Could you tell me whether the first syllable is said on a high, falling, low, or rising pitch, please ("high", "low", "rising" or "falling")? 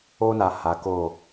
high